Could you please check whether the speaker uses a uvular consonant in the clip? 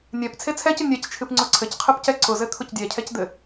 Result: yes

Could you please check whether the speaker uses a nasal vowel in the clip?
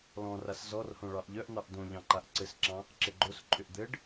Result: yes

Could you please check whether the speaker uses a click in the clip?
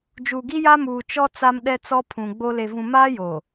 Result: no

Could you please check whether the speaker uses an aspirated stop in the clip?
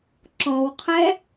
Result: yes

